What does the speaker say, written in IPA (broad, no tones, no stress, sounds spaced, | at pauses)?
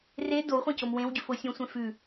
r e d o w χʷ ẽ c o m w ẽ w ɟ ʉ f o sʲ õ sʷ ẽ f ʉ